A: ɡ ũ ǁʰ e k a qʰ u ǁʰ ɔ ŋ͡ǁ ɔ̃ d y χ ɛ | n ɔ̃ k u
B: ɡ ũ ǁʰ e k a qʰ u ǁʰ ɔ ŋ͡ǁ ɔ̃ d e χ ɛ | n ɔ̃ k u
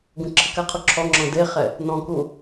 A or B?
B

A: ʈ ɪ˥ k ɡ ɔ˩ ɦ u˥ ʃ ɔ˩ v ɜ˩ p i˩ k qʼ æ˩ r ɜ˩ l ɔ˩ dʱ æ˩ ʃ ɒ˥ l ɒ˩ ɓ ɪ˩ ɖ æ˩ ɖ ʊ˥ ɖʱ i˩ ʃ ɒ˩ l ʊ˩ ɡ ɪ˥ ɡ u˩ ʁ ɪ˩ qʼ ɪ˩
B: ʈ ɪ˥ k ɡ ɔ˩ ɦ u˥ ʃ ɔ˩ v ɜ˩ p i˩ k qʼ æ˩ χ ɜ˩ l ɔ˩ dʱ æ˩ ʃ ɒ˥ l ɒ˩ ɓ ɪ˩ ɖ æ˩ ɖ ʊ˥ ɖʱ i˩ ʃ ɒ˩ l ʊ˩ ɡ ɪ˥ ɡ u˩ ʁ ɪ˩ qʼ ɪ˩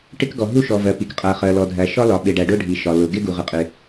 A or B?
B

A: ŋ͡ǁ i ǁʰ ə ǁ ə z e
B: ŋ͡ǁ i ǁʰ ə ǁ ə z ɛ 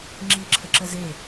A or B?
A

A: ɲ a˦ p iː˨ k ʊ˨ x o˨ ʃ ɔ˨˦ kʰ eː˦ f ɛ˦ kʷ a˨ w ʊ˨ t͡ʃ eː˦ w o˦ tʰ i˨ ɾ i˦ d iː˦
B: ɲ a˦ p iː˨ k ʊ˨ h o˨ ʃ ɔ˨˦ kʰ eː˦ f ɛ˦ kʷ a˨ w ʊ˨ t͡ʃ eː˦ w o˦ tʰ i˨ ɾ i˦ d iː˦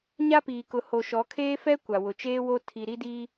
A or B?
B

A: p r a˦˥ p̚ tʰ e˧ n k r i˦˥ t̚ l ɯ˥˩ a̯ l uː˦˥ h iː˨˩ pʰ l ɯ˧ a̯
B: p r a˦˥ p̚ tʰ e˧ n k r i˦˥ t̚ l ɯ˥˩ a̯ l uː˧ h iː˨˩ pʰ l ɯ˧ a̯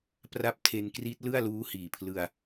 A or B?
A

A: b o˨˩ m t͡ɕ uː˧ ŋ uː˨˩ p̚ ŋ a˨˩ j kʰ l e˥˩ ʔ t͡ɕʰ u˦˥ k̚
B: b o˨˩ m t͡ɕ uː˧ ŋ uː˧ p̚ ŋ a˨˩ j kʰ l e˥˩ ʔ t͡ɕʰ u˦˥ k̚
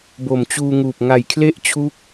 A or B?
A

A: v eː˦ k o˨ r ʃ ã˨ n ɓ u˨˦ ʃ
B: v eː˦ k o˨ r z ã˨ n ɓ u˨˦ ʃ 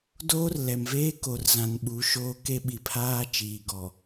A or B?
B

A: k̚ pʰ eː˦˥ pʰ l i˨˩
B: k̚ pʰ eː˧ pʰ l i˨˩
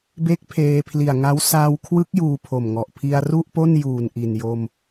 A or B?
B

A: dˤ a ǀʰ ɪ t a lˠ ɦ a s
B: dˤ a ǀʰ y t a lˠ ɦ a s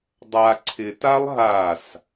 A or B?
A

